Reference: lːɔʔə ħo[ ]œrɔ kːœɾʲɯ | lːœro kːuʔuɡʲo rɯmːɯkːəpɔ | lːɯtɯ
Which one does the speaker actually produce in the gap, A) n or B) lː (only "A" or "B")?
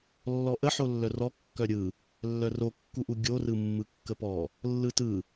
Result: B